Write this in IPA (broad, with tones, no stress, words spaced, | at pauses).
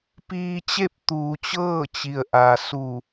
piː˧t͡ɕe˥˨p̚ t̪uː˩˧t͡ɕɤː˥˨t͡ɕi˩ə̯ʔa˩ su˧˩